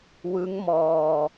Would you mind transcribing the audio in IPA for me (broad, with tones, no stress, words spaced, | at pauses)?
wɯ˦˥ŋmɔː˧